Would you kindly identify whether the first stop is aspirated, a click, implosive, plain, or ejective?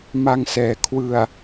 aspirated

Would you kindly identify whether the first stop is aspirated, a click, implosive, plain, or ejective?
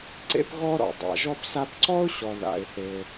click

